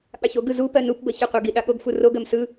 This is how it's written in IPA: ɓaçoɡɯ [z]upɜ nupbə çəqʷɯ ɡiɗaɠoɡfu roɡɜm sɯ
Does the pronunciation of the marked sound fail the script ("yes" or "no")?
no